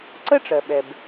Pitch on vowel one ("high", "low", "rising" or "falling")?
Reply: high